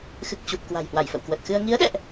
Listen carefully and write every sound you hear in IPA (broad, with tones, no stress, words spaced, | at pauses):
xɨ˨˩k̚t͡ɕu˨˩p̚ kwa̤˨˩jhwa˧˩jfə̰˧˨w kwə˨˩t̚xɨ˧ə̯ ŋi˨˦ə̯ɗɛ̰˧˨ʔ